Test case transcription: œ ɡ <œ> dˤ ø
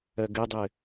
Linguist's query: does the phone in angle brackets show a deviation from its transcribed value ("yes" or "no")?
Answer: yes